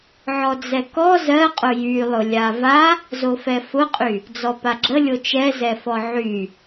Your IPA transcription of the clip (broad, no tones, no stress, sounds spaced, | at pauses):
ʕ ɔ d͡z ɛ k ɔ z ɜ qʼ ʊ j y lˠ ʊ lʲ a v a | z o f ɛ f ʊ qʼ y | d͡z ɔ p a ɡ͡ǁ ə lʲ o t͡ʃ ɛ z ɛ f ɔ ʕ y